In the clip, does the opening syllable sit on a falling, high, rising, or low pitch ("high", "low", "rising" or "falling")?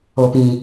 low